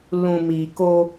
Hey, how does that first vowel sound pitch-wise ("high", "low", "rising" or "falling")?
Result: low